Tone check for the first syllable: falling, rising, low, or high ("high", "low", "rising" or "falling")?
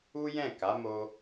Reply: high